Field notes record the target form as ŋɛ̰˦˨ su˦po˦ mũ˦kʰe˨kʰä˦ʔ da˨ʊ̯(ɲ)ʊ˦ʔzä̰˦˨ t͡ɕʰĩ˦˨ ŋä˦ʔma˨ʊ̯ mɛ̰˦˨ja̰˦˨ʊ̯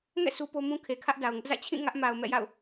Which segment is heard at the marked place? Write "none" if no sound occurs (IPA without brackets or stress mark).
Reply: ŋ